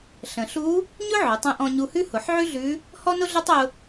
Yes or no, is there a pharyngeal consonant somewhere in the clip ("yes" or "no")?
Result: yes